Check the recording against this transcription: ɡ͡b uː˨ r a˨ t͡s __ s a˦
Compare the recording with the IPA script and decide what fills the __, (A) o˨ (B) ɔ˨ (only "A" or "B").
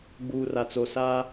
A